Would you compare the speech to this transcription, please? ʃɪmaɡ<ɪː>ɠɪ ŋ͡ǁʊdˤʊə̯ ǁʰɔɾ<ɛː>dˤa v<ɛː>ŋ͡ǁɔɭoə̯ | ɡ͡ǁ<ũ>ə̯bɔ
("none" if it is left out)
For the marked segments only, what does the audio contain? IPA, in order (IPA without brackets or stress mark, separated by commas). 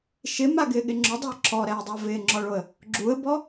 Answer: ɪː, ɛː, ɪː, u